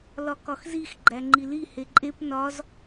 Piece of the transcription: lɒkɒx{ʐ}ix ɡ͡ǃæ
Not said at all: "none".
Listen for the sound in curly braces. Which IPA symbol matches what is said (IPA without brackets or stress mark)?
z